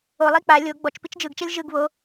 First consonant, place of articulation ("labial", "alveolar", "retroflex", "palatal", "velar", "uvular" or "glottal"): alveolar